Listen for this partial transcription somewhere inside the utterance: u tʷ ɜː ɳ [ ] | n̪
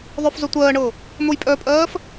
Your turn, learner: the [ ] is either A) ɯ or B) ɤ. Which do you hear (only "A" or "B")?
B